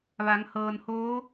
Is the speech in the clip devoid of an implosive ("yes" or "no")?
yes